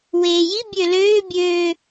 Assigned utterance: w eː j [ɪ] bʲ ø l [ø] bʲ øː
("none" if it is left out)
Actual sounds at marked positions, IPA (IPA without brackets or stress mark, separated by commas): i, øː